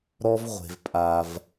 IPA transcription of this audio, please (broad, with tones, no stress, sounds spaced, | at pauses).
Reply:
ɾ ɔ˦ v ʁʷ e̤˧ v pʼ a˧ v